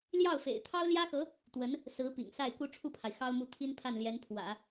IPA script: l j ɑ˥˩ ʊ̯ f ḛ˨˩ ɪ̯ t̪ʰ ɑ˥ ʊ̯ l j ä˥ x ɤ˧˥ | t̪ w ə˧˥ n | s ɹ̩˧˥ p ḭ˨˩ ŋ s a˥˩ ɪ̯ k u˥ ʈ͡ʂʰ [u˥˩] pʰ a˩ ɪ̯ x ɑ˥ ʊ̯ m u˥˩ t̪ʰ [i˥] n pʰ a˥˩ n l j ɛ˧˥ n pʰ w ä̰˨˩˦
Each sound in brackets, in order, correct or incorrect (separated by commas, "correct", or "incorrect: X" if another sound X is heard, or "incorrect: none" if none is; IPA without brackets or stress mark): correct, correct